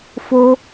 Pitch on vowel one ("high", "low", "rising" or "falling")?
high